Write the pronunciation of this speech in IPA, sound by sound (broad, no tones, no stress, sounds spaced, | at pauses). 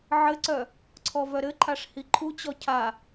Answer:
ʕ ɘ ǀ œ | ǀʰ ɔ v œ ɾ ɘ ǃʰ a ʂ h i ǃʰ u t͡ɕ ɔ cʰ a